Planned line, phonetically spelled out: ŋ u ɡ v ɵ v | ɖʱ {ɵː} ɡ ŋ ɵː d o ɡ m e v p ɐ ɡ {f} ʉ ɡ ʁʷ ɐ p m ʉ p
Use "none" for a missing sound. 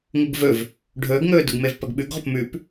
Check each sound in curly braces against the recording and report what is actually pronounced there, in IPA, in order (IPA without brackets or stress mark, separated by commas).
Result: ɵː, ɓ